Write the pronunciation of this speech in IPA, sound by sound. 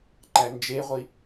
ǃænd͡ʒeʁʷi

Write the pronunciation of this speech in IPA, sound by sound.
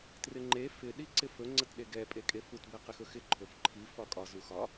trɪŋ͡ǃe fɪ ɗiǀɪfɵ ŋ͡ǀətɗeɡɛ pʼekʼefut bɛqɪxɵxɪ ǃʰɵfǃʰi fɒkʼɒ zuxɒ

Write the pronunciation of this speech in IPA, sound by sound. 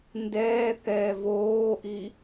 ndɛː θɛːvoːʔi

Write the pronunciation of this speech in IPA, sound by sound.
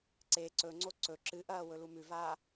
ǀe ǀɵŋ͡ǀo ǀɵ ǁɨʔɐː wɵlumʉvaː

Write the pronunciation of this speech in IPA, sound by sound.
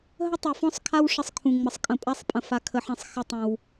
ɦə˦tˤu˨fɔ̃˦sˤkʰa˦w ʂə˦sˤkʰũ˨ ŋ͡mə˨sˤkʼə̃˨ pʼa˦sˤpʼə̃˨fa˨kʰə˨ ħɛ̃˨sˤ xə˦tˤə̃˨w

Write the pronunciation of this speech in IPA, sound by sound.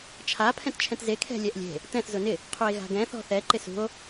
t͡ʃʰa pʰɛ̃tt͡ʃʰɛ̃tze kʰɛ̤lʲɛʔlʲe̤ | tɛ̃θ zʊnɪ | qʰue̯ɣa̤ɡɛ̃ θɔ̤θɛ ǃɪsṳo̯

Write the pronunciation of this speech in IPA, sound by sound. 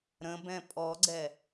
ɾə̃bɛ̃ pʼɔɡ͡ǀɛ

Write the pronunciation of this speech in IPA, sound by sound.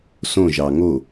sõʒɑ ŋo

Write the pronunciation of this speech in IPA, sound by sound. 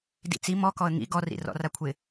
dḭt͡si mɔkɔə̯ ŋḭ ɡɔrḭ rɔ̰rakʷʰɪ

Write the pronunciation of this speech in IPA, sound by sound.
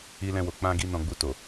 i˦lɛ̃˦wo˧ k͡pã˦ ɡi˦ nɔ̃˧ɡ͡bu˧ to˨

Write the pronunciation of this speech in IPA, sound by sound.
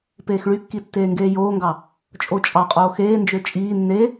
peːxɭykːi tːeːŋɡeːjoːŋɡɑ | t͡ʃʼot͡ʃʼɑqʼoː xeːnd͡ʒø t͡ʃʼiː nːe

